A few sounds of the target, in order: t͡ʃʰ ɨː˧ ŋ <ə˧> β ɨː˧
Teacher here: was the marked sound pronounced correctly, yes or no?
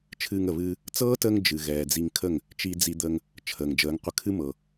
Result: no